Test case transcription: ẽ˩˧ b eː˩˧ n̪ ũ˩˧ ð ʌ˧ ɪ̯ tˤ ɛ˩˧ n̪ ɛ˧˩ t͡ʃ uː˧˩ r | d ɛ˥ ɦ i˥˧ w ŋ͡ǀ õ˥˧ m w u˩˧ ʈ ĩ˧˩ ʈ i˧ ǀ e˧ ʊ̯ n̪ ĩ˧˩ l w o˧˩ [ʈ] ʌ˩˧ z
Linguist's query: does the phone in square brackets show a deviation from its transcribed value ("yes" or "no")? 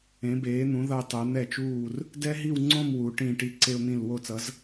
yes